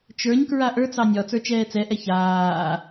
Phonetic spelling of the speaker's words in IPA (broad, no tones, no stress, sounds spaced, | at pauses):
t͡ʃ ə˞ ɲ k ɹ a ʔ ə˞ t͡s ɑ nʲ ɒ t͡s ə˞ t͡ʃ ɛː t͡s ɛ ʔ ɛ ç aː